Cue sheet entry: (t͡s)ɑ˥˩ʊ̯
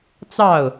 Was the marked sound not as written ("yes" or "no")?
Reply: no